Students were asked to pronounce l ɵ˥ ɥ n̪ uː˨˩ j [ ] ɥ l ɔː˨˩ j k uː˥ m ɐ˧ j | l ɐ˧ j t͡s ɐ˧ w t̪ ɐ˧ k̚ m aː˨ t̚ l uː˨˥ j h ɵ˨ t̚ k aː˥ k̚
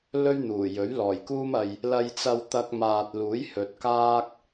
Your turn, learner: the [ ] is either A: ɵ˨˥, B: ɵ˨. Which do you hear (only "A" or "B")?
A